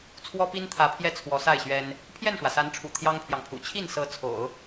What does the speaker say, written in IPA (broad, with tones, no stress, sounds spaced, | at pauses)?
t͡sʰ w ɔ˥ p i˥ n t̪ʰ ä˧˥ pʰ j ɛ˥˩ t͡sʰ w ɔ˧˥ s a˥˩ ɪ̯ ɕ ɥ ɛ˥ n | pʰ j ɛ˥˩ n ʂ w ä˩ s a˧˥ n ʈ͡ʂʰ ṵ˨˩ t̪ʰ j ɑ˥ ŋ pʰ j ɑ˨ ŋ pʰ ṵ˨˩ t͡ɕʰ i˥˩ n s ɤ˧˥ t͡sʰ o̰˨˩˦ ʊ̯